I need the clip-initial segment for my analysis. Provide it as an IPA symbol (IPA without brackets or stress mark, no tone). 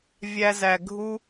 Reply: vʲ